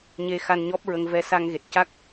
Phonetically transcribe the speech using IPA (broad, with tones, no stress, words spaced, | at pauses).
ɲe˧xa˧nɲɔ˦˥p̚ɹə˧ŋ vɛ˧sa˧ŋɣe˨˩t̚ca˦˥k̚